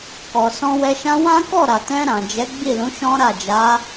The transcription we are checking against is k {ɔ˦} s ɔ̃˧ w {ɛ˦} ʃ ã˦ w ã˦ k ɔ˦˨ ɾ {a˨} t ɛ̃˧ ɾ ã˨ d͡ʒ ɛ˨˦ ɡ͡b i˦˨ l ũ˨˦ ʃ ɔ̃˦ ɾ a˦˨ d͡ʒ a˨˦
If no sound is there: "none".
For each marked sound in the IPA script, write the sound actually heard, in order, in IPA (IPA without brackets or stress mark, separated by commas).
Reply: ɔ˨, ɛ˧, a˨